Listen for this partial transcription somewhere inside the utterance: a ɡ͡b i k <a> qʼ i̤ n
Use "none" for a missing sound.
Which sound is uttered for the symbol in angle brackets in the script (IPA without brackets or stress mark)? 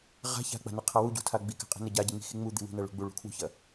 a̤